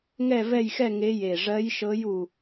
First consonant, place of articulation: velar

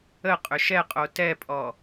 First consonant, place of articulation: uvular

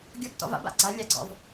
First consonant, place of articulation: velar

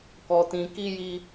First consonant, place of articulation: velar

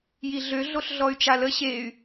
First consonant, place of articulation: palatal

